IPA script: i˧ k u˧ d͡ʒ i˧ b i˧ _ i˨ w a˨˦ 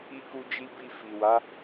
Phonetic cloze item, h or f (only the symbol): f